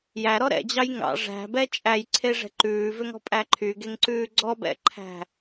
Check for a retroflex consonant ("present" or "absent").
present